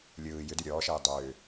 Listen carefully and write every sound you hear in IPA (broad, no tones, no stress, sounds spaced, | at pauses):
lʲ ɯː j ʏ d ʉ ɾʲ ɔː ʃ ɛ j dˤ ʏː